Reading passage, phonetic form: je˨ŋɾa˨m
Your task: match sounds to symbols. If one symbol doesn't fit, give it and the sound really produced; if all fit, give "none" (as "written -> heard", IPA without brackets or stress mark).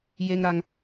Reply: m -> ŋ